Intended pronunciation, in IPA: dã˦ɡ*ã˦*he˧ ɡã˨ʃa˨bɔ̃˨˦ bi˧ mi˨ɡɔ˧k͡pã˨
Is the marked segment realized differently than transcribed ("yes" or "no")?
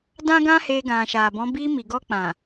no